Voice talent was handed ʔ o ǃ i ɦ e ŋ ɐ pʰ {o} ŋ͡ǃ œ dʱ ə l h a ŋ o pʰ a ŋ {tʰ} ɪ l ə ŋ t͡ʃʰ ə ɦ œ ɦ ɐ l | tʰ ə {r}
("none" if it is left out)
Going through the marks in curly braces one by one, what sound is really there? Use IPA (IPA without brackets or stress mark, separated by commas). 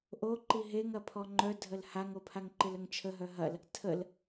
ɔ, ǃ, l